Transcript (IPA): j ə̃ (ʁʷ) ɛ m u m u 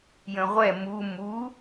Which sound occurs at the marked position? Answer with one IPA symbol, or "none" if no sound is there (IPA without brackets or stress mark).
ʁʷ